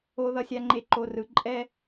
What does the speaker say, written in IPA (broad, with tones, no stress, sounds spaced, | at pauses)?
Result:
o˨ ð ʌ˨ sʲ a˨ ŋ͡ǃ e˨ ǃ o˨ r ɯ˨ ǃʼ ɛ˦